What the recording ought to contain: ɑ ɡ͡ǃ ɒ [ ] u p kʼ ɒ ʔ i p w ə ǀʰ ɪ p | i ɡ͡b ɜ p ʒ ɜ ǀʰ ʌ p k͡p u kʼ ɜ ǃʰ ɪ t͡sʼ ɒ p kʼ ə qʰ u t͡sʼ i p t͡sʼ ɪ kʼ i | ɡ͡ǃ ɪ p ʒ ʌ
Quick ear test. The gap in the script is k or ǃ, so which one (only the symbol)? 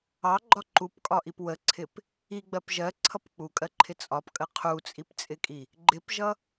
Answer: ǃ